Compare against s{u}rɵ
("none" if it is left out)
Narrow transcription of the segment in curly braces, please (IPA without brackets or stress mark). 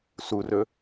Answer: u